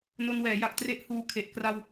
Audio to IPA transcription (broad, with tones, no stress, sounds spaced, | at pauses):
n o˧ n w ɛː˩˦ j a˨˩ k̚ t r e˦˥ ʔ h uː˧ kʰ e˨˩ ʔ k r a˧ w